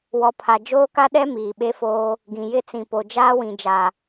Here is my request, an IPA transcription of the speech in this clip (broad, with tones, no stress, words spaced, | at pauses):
wɔ˨pʰa˨ d͡ʒoː˦ka˦ɗɛ˦ miː˨ɓe˦foː˦ | ɡĩ˨jɪ˦ t͡sĩ˨po˨ d͡ʒaː˦wĩ˨d͡ʒa˨